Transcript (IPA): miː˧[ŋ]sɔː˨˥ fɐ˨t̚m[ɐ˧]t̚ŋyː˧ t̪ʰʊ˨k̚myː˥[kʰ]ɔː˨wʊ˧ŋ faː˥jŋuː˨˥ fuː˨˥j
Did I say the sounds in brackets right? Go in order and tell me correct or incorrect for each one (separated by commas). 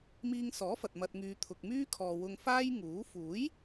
correct, correct, correct